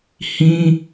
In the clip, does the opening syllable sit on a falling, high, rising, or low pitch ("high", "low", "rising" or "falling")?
high